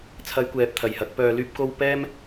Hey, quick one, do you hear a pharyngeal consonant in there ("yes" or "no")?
no